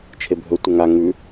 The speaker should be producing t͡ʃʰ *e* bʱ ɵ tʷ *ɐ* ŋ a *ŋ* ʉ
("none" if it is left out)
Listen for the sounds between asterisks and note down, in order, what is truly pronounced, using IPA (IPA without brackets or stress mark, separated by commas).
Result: e, ɐ, ŋ